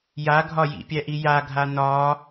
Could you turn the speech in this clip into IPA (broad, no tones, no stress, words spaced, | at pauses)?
jaɡʱɒ jḭpʲæʔi jaɡʱa nɒ